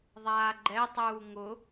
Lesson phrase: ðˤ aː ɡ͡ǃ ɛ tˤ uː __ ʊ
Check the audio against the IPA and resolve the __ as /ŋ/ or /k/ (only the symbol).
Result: ŋ